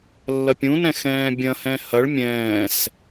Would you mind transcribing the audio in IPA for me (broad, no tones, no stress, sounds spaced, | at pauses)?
lː ɐ pʲ ũ n ɛ̃ x ɛ̃ː bʲ ɐ̃ h ɛ̃ h ɐ ɭ mʲ ɛ̃ː s